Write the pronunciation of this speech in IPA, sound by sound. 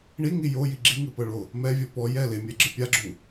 ɳ i ŋ i j o j i ɡ͡ǁ i ŋ ɯ p ɤ ɭ o | m ɛ vʲ ɔ p ɔ j ɛ l e mʲ ɛ ɡ͡ǁ ɯ pʲ a ɡ͡ǁ u

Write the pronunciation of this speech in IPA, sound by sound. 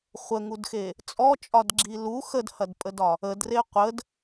χʷ ə ŋ u d x e | t͡sʼ ɔ t͡ʃʼ ɒ d ɡ͡ǁ i l u x ə d h ɐ d pʼ ə d ɒ | ə d r e qʷ ə d

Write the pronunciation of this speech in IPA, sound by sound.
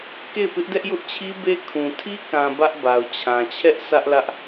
k e˦˨ ɪ̯ p ɪ˦ ʔ d ɛ˦ ʔ j ʊ˦ ʔ t͡ɕʰ i˦ b e˦ kʰ ũ˨ tʰ i˦ k ã˨ b ä˦ ʔ b a˨ ʊ̯ t͡ɕʰ ã˨ t͡ɕʰ ɛ˦ ʔ sʰ ä˦ ʔ l ä˦ ʔ

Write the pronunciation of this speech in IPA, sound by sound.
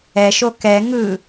ɛ ʃ o k ɛ ŋ ɯ

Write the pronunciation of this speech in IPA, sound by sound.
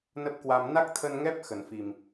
n ə˦˥ p̚ k w a˧ m n a˦˥ k̚ t̪ʰ ə˧ n ŋ ɛ˦˥ p̚ x ə˨˩ n f i˨˩ m

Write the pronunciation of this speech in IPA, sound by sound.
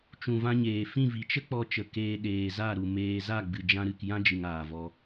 t͡ʃ ũ˨ v ã˧ ɲ eː˨ f ĩ˦˨ v i˨ t͡ʃ ə˦ k͡p ɔ˧ t͡ʃ ə˨ k eː˧ ɗ eː˨ z a˦˨ ɾ u˨ m eː˧ z a˦˨ ɡ͡b ɨ˨ d͡ʒ ã˧ ɾ ɨ˨ k j ã˦ d͡ʒ ɨ˨ ŋ aː˨ v ɔ˧

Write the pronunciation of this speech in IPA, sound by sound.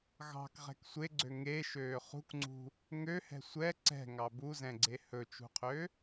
ɣ ɑ̤ k ʁ ɛ̤ k sʷ e ɡ͡ǀ ø ŋ e ʃ øː χ ṳ k ŋ͡ǀ ṳ | ŋ ø h ɛ̤ sʷ ɛ ǀ ɛ̤ ŋ ɑ b u z ɛ̃ ɡ͡ǀ e h ɵ t͡ʃ ṳ qʰ ø

